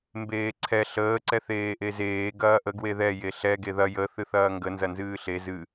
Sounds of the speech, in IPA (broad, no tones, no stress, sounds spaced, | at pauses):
m b eː ǀʰ ɛ ɬ əː ǀ ɛ θ eː ʔ e z eː ɡ ɐː ʔ ə ɡ w e ð ɛ j e ɬ ɛ ɡ e ð ɐ j ə θ ɨ θ ɐː ŋ ɡ ə n z ɐ n z ɨː ɬ e z ɨ